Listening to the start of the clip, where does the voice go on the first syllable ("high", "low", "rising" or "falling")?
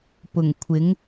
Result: low